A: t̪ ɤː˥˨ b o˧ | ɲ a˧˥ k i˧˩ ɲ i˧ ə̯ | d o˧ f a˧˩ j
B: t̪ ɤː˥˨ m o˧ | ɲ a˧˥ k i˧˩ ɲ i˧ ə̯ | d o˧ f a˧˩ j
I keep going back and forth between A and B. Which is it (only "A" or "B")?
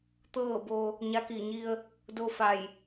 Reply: A